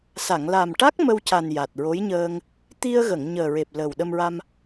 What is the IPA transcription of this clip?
s a˨˩˨ ŋ l a˨˩ m ʈ a˦˥ k̚ m ə˧ w c a˨˩ n j a˨˩ t̚ ɹ o˧˥ j ɲ əː˧ ŋ | t̪ i˧ ə̯ ɣ ə˨˩˨ ŋ ɲ əː˨˩ ɹ e˨˩ p̚ l əː˨˩ w ɗ ə˧ m ɹ a˧ m

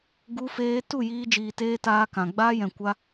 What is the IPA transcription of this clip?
ɡ u˧ f eː˧ t u˦˨ j iː˧ d͡ʒ iː˧ t eː˦ t aː˧ k ã˨ ɡ͡b aː˧ j ɛ̃˨ kʷ a˧

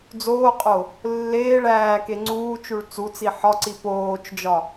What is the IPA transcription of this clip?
d͡z oː qʼ o | lː eː ɭ æː k e ŋ͡ǀ uː t͡ʃ u ɭ t͡s u t͡s i ħ ɒ ǀ i p oː t͡ʃ d͡ʒ ɒ

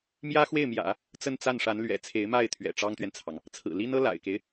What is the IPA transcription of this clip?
m j ä˥ x w e˥˩ ɪ̯ m j ä̰˨˩˦ | t͡s ə˥˧ n t͡s a˥˩ n ʂ a˧˥ n l ɥ ɛ̰˨˩ t͡sʰ e˧˥ ɪ̯ m a˥˩ ɪ̯ t̪ʰ ɥ ɛ̰˨˩ ʈ͡ʂ ɑ˥ ŋ t̪ ɥ ɛ˨ n t͡sʰ ɑ˩ ŋ | t͡sʰ ɹ̩˨˩ l i˥ n ɤ˥ l a̰˨˩ ɪ̯ k e˦ ɪ̯

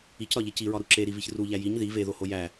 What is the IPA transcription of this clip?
i c ɾ ɒ ʎ e c i ɹ ɒ ɾ u ǁ e ɾ i v i ç r u ʎ æ j i ɲ ð i v e ð o h o j æ

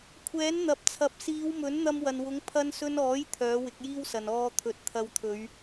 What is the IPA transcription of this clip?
kʷʰ ɛː˨˥ n n̪ ɐ˨ p̚ t͡sʰ ɐ˨˥ p̚ s iː˨˧ w m ɵ˨˥ n n̪ ɐ˧ m w ɐ˨ n w ʊ˨˥ ŋ pʰ ɐ˧ n s ɵ˧ n ɔː˨˥ j t̪ʰ œː˨˥ w ɪ˨˥ k̚ j iː˥ w s ɐ˨ n ɔː˧ t̪ʰ ɵ˨˥ t̚ t̪ʰ ɐ˧ w t̪ʰ ɵ˨˧ ɥ

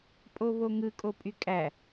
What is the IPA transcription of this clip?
pʼ o β o ŋ ɯ kʼ o pʼ y kʼ æ

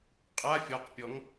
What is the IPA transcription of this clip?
qʼ a fʲ ɔ q pʲ ɔ ŋ

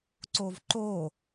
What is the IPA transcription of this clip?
ǀ o v ǃ o

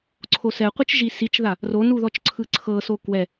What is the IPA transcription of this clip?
ǀʰ o s ɛ qʷ ɯ t͡ʃ ʒ i s i t͡ʃ ð a | r o n u ð ɔ t͡ʃ ǀʰ ɯ ǀʰ ɤ s o k w ɛ

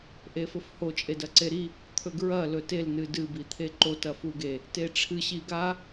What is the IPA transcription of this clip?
ʔ e f ɵ f h o t͡ʃʼ e d ɐ ǀ e ɾ i | t̪ʰ ɵ ɡ ɹ ɐ l ɵ t e l n ɨ d ɨ b i t̪ʰ e ǃ o t ɐ f u ɡ e | t e ʈ͡ʂʰ ɨ ɕ i ɡ a

